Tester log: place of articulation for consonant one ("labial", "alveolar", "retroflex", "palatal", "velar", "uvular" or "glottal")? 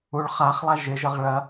retroflex